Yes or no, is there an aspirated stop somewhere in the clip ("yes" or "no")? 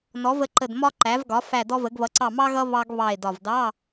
no